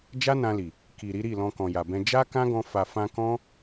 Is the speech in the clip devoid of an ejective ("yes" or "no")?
yes